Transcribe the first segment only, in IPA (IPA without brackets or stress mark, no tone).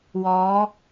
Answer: w